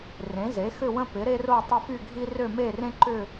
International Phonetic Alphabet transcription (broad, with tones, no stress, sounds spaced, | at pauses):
r ẽ˩˥ z e˩˥ x ʏ˥˧ w ə̃˥ p ɪ˩˥ ɾ e˥ r o˥˧ tˤ ɪ˥˧ f y˥˧ ɡʱ i˥ r ø˥˧ m e˥˧ r ẽ˥ ǃ ʏ˥˧